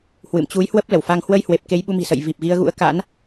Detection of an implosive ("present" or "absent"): present